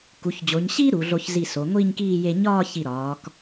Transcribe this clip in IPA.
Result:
k u˩˧ ç d͡ʑ o˩˧ ɲ ɕ iː˥ ɾ u˩˧ ɮ o˧ ç z i˧˩ s o˩˧ ŋʷ iː˥˧ ɲ k iː˥˧ j e˧ ɲ ɒː˥˧ ç i˧˩ ɾ ɒː˩˧ k

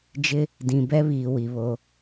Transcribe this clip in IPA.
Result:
d͡ʒ ɪ˦ | d ĩ˨ b ɛ˦ β iː˨ w i˨ β o˦

